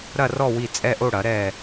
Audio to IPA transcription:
ɾ ɐ˦˨ r ɔ˦˨ w i˦˨ t͡sʼ ɛ˦˨ ʔ o˦˨ ɽ ɐ˩˥ ɾ ɛ˦˨

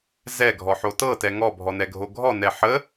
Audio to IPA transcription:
z ɛ ɡʱ ɔ ħ o t ɤ t ɛ ŋ ɔ bʱ ɔ n ɛ ɡʱ o ɡʱ ɔ n ɛ ħ ə

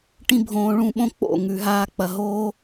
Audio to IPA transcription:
ʈ ĩ˧ bʱ õː˨ ɭ ũ˦˨ ɓ õ˦ k͡p o̰˦˨ ŋ ʉ˨ ɦ aː˧ k͡p ɐ˨ ɦ oː˦

